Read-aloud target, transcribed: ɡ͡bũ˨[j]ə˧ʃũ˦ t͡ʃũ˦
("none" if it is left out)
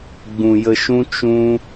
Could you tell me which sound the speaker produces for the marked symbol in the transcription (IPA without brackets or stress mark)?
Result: j